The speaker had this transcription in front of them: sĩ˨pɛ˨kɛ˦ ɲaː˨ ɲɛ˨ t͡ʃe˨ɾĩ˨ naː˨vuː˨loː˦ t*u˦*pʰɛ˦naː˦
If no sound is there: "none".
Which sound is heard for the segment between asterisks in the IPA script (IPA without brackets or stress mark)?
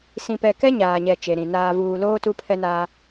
u˦